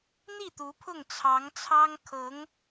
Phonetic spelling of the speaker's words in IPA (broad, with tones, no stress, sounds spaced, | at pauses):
n̪ i˥˩ t̪ u˧˥ pʰ ʊ˥˩ ŋ t͡sʰ ɑ˧˥ ŋ t͡sʰ ɑ˥ ŋ kʰ ɤ˧˥ ŋ